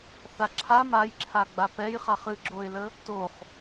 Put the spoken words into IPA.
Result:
θ a ǁʰ a m a j ǁʰ a ɡ͡b a p ɛ j χ a χ ɨ ɡ͡ǁ o ɪ̯ l ə | t o χ

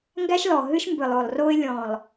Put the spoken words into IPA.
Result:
ŋ ɡ æ˦ ʃ l ɔ˨ ɦ ɨ˦ ʃ m b ɨ˨ lˠ o˨ lˠ r o˦ ɪ̯ lʲ ɔ̃˨ lˠ

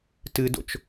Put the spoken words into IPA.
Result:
t ɨ d o̰ t͡ʃ

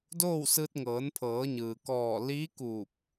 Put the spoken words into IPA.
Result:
d oː˥˨ w s ɯː˧ t̚ ŋ ɤː˩˧ n pʰ ɤː˩˧ ɲ ɯː˩ k ɔː˧˩ l iː˧˥ k uː˧˩ p̚

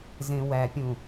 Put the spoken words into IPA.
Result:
z ẽ w æ pʲ ũ

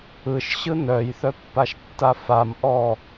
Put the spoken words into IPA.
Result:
ɯ ʃ ɕ ɯ n œ j θ œ pː a ʃ tː a f a m ʔ ɔ

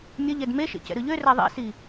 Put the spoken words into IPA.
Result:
mʲ ə ʎ ɛ d m e ʃ ḛ c ɛ̰ ɾ ɯ ʎ ø r æ ðˤ ḭ s i

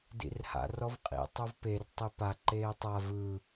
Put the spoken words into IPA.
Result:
d ḭ r h a̰ r ɔ v qʼ ḭ tˤ o v p e r tˤ i p a ǃ eː tˤ a v ɯ

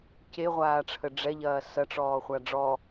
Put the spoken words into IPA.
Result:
c e ʁʷ aː ʈ͡ʂʰ ə ɖ͡ʐ ɛ ʎ ɐː s ɐ ʈ͡ʂ ɔː χʷ a ɖ͡ʐ ɔ

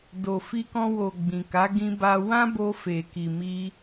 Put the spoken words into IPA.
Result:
d o˨ f i˧ k ɔ̃˧ w o˨ ɡ͡b ĩ˨ k a˨˦ ɡ ĩ˧ b a˧ w ã˦ b o˧ f e˨ k i˨ m i˧

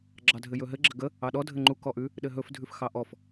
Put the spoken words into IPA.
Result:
ɡ͡ǁ ɑ dʱ ɘ j ɵ ɦ ɘ ɡ͡ǁ ɘ ɡ ə | ɑ ɗ ɔ dʱ ɘ ŋ͡ǃ u k ɔ ʔ ʉ | ɗ ɘ ɦ ɵ f dʱ ʉ f x ɑ ʔ ɔ f

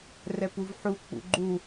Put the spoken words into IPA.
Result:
r ɛ p u v ħ u k͡p ṵ ɡ͡ǃ u

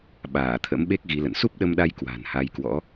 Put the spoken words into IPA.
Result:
ɓ aː˧˩ t̪ʰ ə̰˧˥ m ɓ e˦˥ k̚ ɣ i˨˦ l ə̰˧˨ n s u˦˥ p̚ ɗ ə˧ m ɗ a˧ j k w a̤˨˩ n h a˧ j k w ɔ̰˧˥

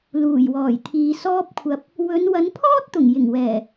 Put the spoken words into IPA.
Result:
l uː˨˩ j w ɔː˨˩ j t̪ʰ iː˨ s ɔː˧ p̚ kʷʰ ɐ˨ p̚ | w ɵ˨˧ n w ɐ˨˧ n pʰ ɔː˥ t̚ t̪ ʊ˨˩ ŋ j ɪ˨˩ ŋ w ɛː˨˩

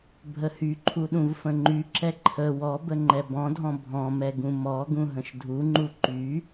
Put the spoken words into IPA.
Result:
bʱ ə h y ǃʰ u ɗ ũ v f ə̃ ŋ͡ǃ y ǁ ɛ ǃʰ ə w ɔ b ə ŋ͡ǃ ɛ b ɔ̃ dʱ ɔ̃ bʱ ɔ̃ m ɛ ɡ ũ m ɔ ɡ ũ ɦ ə̃ ʃ dʱ u ŋ͡ǃ u ǃ y

